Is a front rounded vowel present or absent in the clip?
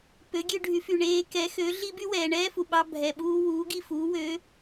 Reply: present